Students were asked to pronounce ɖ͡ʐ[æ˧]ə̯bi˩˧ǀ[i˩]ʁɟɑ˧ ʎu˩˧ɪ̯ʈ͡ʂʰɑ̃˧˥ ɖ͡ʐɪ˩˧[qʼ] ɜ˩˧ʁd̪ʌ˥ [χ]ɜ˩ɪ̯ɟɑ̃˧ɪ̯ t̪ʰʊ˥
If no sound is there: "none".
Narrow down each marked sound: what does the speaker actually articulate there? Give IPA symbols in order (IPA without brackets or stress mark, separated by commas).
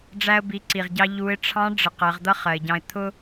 æ˧, i˩, q, χ